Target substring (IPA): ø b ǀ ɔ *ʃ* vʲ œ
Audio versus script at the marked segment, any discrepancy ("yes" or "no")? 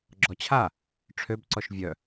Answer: no